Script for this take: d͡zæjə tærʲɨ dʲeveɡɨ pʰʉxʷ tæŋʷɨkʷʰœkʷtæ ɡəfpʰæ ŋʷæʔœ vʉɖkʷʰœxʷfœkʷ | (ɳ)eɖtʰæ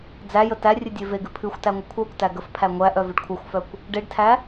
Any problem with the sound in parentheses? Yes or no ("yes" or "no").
yes